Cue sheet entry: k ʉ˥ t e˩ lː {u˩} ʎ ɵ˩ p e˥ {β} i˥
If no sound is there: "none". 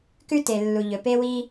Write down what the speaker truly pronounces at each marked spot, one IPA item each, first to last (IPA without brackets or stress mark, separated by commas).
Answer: u˩, w